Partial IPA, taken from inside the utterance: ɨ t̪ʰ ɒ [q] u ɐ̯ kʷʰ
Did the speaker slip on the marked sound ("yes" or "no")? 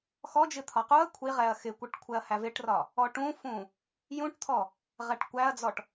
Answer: no